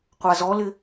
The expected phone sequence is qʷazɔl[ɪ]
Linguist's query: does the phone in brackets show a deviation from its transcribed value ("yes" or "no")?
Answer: no